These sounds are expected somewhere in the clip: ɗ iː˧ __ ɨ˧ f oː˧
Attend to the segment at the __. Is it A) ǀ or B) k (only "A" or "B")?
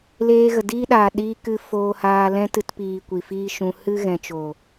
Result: B